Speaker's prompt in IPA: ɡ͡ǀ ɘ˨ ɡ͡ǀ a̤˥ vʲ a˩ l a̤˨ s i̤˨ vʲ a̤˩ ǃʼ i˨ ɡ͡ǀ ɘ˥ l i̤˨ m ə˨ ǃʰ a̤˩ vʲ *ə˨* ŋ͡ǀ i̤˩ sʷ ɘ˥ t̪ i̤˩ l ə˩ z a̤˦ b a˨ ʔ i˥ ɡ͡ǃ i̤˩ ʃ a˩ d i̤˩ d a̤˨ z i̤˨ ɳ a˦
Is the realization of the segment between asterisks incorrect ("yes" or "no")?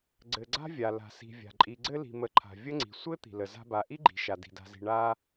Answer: yes